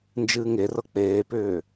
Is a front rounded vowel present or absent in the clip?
present